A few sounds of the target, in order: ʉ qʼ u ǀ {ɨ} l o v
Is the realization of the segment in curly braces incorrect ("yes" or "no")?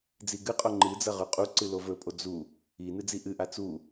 no